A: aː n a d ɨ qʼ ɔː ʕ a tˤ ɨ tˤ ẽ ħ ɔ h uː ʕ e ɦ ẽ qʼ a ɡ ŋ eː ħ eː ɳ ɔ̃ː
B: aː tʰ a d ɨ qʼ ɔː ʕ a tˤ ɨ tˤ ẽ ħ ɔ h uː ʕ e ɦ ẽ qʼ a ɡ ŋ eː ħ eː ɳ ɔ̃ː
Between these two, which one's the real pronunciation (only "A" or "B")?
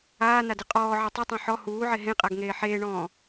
A